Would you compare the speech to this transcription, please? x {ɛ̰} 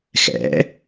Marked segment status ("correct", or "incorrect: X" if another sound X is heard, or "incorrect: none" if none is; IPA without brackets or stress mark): correct